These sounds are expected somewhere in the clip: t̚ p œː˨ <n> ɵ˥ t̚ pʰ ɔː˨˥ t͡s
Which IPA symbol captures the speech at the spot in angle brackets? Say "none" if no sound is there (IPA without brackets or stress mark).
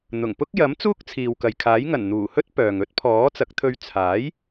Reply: ŋ